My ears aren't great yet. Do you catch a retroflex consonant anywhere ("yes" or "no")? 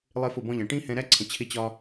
yes